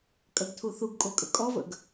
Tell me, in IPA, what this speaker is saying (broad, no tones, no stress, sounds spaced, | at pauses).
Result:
kʼ ɐ ɡ tʰ u θ u ɡ kʼ o kʼ ə̰ kʼ ɔ v ə̰ ɡ